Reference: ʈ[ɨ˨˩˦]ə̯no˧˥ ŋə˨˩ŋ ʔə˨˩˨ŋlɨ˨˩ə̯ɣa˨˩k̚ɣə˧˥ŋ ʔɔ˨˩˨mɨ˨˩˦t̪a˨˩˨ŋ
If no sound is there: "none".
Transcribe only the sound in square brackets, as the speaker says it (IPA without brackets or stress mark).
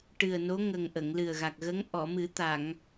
ɨ˨˩